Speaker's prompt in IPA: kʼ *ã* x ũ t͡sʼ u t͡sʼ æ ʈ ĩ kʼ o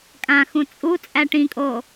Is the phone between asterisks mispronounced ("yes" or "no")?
no